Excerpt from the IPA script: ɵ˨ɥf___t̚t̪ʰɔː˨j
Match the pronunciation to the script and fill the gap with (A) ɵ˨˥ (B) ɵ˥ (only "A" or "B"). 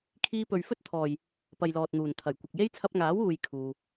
B